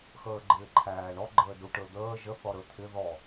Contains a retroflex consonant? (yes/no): yes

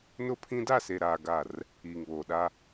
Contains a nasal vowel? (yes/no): yes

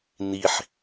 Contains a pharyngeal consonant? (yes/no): yes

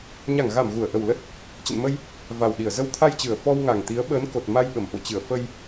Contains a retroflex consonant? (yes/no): no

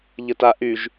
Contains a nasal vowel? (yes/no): no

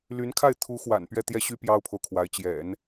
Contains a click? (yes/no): no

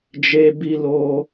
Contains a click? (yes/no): no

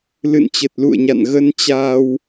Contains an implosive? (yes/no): no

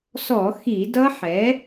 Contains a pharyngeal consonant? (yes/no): yes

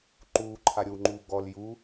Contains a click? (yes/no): yes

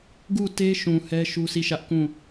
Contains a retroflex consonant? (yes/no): no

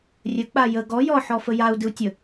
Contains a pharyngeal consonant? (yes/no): yes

